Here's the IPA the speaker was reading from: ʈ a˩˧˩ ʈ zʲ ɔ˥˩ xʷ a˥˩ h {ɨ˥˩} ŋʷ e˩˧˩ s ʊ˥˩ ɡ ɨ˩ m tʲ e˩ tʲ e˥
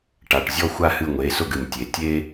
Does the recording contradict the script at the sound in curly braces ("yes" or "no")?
no